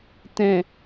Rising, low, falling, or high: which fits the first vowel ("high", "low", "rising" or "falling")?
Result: low